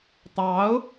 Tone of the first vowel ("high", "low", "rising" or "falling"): rising